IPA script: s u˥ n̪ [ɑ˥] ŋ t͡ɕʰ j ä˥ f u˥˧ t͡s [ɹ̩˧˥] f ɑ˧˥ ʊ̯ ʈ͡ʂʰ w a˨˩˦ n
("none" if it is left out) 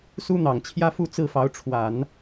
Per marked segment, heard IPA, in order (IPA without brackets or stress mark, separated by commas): ɑ˨˩, ɹ̩˥˩